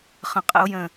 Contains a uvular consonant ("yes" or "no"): yes